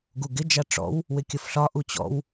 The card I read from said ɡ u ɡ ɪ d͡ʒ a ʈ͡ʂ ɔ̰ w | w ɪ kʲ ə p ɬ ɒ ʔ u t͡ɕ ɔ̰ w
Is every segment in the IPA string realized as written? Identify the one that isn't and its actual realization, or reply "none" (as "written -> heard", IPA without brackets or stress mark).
p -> f